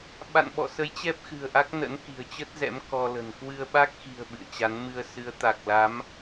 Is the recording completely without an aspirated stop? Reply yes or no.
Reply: yes